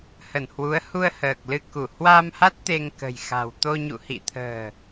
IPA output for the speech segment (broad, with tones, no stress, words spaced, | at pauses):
hə˧˩nhwu˨˦ə̯ hu˧ə̯həː˨˩k̚ lɨ˧ku˧˩ hwa˧mha˦˥t̚ t̪e˧ŋkə̤˨˩jxa̤˨˩w t̪o˧ɲṵ˧˨ hḭ˧˨t̪ʰə̤ː˨˩